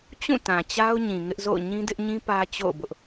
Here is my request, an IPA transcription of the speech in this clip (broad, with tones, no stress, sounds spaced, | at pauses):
t͡ɕ ũ˦˨ t ã˨ t͡ɕ a˦ ʊ̯ ɲ ĩ˨ ŋ ɪ˦ ʔ z o̰˦˨ ʊ̯ ɲ ĩ˦ d ɪ˦ ʔ ɲ ĩ˦ p ä˦ t͡ɕ o̰˦˨ ʊ̯ b ʊ˦ ʔ